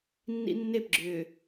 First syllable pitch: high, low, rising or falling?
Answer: high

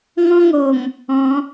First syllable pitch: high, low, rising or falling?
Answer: high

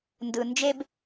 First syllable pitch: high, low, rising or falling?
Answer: low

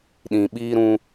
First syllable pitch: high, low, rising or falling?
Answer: low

